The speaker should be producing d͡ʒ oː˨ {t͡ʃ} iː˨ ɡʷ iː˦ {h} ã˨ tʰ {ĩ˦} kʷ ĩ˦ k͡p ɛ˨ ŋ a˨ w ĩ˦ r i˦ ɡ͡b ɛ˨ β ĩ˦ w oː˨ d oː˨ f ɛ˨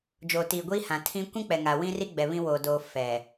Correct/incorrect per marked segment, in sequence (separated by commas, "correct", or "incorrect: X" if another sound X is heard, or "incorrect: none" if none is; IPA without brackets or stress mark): incorrect: t, correct, correct